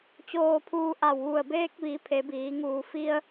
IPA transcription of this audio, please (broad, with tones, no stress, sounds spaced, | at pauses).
t͡ɕ oː˧ pʰ uː˧ ʔ a˧˩ w ʋ u˧˩ ə̯ b eː˧ k̚ ʋ i˩˧ pʰ e˩˧ b iː˩˧ ŋ uː˩ f i˧ ə̯